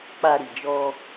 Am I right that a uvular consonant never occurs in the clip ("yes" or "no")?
yes